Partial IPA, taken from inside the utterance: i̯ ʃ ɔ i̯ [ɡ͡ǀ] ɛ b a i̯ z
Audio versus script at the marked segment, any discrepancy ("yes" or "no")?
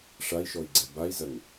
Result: no